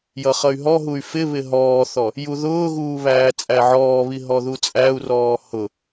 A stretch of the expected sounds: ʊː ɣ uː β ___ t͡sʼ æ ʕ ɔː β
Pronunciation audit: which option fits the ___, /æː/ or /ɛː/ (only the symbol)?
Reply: æː